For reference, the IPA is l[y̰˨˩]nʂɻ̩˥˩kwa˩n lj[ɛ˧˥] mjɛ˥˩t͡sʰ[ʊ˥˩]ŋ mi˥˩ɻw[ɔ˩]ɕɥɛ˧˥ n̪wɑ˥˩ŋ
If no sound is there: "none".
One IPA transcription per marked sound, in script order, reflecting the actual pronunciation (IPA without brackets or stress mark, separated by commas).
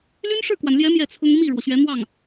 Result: y˥, ɛ˧˥, ʊ˥, ɔ˩